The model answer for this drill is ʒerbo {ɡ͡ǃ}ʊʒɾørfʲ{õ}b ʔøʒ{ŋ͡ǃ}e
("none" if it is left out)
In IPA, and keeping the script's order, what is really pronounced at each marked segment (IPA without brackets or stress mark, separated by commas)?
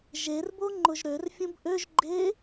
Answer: ŋ͡ǃ, õ, ɡ͡ǃ